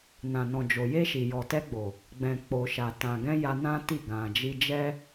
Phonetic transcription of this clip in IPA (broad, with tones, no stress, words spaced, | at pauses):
nã˨nɔ̃˨ d͡ʒo˨je˧ʃi˨ jɔ˨tɛ˧ɡ͡bo˨ | ɡ͡bɛ̃˨ k͡po˨ʃa˨ tã˨ɡɛ̃˧ ja˧nã˦ti˦˨ ɡã˨d͡ʒi˧d͡ʒɛ˦